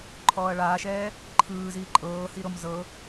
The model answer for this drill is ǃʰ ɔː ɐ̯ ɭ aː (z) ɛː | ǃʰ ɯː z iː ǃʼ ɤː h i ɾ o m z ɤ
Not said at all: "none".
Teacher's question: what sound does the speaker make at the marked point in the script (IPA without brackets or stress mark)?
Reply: ʃ